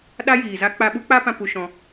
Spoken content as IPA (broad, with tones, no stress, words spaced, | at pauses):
ɗa˦jiː˨za˦ k͡pa˧ɓu˦k͡pa˦pã˧ pu˧ʃɔ̃˧